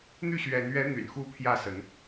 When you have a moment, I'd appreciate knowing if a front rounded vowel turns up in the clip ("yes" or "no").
yes